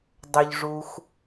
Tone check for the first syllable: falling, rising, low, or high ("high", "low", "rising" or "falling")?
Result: low